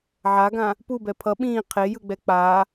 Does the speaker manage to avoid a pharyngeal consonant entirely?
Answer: no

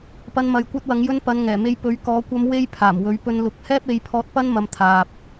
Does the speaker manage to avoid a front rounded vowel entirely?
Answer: yes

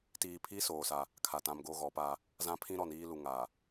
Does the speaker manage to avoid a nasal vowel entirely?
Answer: no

